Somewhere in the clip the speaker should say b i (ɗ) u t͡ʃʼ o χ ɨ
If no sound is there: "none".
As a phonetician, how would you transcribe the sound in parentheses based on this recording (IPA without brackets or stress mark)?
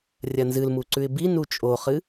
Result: n